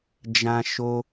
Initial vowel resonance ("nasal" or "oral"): nasal